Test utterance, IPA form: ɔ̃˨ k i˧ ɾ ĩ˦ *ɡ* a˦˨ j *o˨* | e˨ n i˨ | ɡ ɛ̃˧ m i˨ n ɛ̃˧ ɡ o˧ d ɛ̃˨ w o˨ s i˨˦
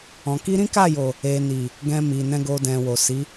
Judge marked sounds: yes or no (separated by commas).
no, yes